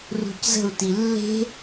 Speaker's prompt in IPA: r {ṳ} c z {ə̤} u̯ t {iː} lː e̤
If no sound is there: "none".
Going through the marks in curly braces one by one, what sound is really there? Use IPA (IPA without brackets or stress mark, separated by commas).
ṳ, ə̤, i